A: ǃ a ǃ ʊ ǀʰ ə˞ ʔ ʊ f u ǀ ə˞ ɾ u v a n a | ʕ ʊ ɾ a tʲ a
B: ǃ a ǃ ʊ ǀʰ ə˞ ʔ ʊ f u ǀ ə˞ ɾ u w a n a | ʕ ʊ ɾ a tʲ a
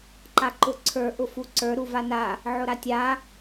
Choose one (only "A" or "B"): A